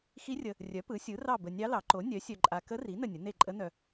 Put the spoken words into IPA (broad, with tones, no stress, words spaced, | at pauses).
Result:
xi˧˥rʲə˨ | rʲœ˩˥pɯ˩˥sʲɯ˩˥ rɑ˦˨ bə˨ nʲɑ˧˥lɑ˩˥ ǃo˩˥nʲœ˩˥sʲœ˨ǃʼa˨ kə˧˥ri˩˥ nə˦˨nʲə˩˥ ne˦˨ǃʼə˧˥nœ˨